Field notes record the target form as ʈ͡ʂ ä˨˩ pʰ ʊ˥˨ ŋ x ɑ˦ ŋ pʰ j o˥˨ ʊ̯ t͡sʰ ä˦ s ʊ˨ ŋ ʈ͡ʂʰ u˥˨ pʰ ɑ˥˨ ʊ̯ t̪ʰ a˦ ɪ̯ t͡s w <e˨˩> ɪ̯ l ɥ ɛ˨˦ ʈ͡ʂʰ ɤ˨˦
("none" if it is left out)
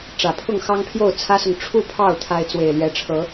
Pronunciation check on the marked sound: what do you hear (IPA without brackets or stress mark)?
e˨˩